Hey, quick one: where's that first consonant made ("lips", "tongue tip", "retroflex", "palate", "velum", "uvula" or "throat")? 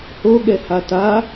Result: throat